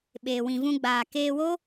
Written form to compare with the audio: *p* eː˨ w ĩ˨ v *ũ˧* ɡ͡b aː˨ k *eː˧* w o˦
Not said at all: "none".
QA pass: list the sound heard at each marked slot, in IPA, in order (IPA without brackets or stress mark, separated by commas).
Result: ɓ, ũ˧, eː˧